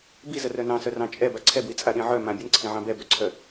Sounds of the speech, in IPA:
bizə rœnɑ̃sœ rɑ̃t͡ʃʼɛ baǀʰɛbwi t͡sʼaɗĩʕœ mã bʲənǀʰĩʕɑ̃ bɛbœǀʰœ

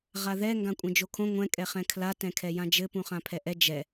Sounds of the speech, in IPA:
ʁaðɛ ŋɡãkʷʼɛ̃d͡ʒokʰõ ŋʷɛ̃ kʼɛχɛ̃kʰla tɛ̃kʰɛjãd͡ʒɘ pũχãpʰɛʔɛ d͡ʒɛ

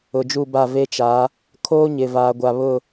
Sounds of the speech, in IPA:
ʊ˨d͡ʒu˦˨ba˦˨ ve˦t͡ʃa˨˦ | kʰoː˦ɲɪ˨vaː˨ɡʷa˨ βʊ˦˨

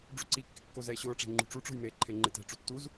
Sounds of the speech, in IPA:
ɖ͡ʐuǀikːɪ kːozɛe̯ɕʊːʈ͡ʂe̤ ŋ͡ǃṳʈ͡ʂuʈ͡ʂo̤j me ǃʰeŋ͡ǃetɛ̤ʈ͡ʂu tːuz

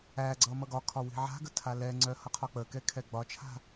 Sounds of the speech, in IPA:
æɡ͡ǀʌ mʌɡɒkʰɒ wi̤ʕa̤ɡə tʰalɛŋ͡ǀœ hʌqʰɒk͡pəkɛ kʰɛɡ͡bɒt͡ʃʰa̤

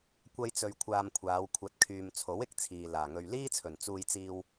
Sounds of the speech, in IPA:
kʷɐ˥jt͡sɵ˧ɥkʷʰaː˧m kʷʰaː˨˧w kʷʰɐ˨˥t̚ kʰyː˨mt͡sʰo˨˥w ɪ˨k̚t͡sʰiː˨laː˨˩ŋɵ˧ɥ liː˥t͡sʰɵ˨˩n t͡suː˧jt͡siː˧w

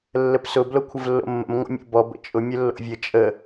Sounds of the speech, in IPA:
lːəpsʊ blokʷʰəvlːo̰mːə̰m ŋʷə̰mʲo̰bɔ bə̰t͡ʃʼʊ mʲəlːo̰vʲə t͡ʃʼə

